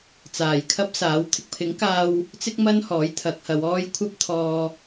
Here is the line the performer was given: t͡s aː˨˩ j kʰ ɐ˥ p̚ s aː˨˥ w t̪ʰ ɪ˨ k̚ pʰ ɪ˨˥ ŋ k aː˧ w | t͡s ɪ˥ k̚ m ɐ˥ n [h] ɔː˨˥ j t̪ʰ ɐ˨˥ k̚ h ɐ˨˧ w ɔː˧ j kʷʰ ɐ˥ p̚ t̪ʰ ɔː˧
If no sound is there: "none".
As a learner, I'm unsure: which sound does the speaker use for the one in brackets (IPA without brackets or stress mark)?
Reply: h